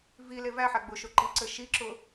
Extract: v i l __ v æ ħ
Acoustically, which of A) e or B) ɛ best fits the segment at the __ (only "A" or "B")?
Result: A